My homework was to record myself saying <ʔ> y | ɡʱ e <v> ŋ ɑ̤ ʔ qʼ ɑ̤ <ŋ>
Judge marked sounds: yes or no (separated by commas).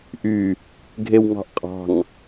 yes, no, yes